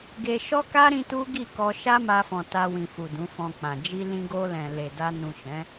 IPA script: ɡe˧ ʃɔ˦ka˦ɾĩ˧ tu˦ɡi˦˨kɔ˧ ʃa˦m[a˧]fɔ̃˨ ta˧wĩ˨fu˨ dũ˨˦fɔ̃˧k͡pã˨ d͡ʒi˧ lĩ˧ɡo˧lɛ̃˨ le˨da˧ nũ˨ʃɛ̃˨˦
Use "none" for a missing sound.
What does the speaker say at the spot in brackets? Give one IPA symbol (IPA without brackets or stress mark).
a˧